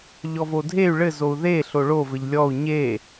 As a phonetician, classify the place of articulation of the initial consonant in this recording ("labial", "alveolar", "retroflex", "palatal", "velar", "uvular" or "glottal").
palatal